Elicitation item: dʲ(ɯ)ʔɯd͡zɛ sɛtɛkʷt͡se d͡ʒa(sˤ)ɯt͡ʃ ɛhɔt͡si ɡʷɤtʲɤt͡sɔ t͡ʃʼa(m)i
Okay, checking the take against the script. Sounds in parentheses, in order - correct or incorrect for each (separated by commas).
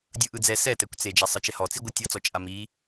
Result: correct, correct, correct